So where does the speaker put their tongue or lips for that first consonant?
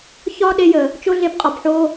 palate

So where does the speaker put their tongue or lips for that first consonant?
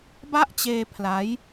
lips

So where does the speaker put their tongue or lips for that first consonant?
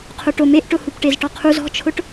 uvula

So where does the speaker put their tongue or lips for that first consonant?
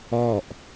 throat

